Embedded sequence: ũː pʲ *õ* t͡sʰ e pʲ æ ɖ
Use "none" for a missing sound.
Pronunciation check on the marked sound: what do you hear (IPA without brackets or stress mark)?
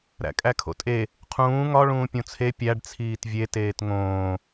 õ